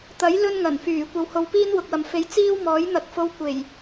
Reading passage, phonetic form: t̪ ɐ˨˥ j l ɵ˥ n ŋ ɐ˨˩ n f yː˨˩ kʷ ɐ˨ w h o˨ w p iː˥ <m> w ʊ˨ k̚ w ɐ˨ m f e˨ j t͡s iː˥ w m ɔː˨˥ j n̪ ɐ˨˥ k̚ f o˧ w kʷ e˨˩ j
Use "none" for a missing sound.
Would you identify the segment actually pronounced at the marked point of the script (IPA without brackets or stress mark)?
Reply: n